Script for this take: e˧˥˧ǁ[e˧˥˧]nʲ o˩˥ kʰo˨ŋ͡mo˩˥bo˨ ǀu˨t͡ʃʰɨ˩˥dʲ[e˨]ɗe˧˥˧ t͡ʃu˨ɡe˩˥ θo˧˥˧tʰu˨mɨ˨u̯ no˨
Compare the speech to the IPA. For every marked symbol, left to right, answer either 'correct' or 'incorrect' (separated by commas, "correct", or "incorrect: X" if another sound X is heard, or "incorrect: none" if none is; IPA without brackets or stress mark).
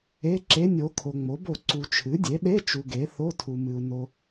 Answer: correct, incorrect: e˩˥